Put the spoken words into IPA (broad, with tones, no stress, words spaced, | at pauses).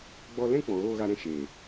ɡ͡bɔ˧lɛ̃˦ k͡pɔ̃˨ɣoː˧ ɣa˧ɾɛ̃˧ ʃeː˨